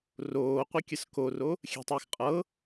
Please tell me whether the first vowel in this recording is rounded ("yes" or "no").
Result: yes